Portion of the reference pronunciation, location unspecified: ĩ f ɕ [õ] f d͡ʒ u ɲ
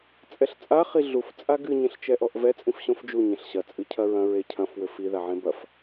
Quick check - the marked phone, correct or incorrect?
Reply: correct